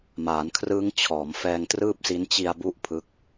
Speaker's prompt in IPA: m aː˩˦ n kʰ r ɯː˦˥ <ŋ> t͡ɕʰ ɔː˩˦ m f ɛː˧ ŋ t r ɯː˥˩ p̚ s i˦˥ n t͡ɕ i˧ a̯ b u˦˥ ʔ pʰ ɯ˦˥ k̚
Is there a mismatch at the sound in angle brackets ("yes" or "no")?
no